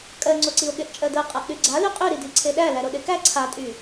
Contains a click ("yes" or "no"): yes